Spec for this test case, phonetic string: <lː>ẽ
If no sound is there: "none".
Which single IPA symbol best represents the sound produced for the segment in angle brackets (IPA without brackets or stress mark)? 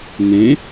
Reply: n